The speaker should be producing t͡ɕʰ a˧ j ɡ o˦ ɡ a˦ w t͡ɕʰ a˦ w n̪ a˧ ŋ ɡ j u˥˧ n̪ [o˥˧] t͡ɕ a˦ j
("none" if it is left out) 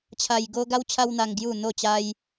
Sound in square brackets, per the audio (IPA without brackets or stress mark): o˥˧